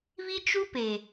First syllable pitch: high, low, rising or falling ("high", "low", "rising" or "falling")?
high